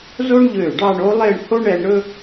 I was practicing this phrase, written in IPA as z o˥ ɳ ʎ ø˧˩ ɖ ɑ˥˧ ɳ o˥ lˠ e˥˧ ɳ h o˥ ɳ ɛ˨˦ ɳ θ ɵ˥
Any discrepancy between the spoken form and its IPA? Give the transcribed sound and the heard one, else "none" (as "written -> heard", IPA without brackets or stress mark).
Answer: θ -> ɾ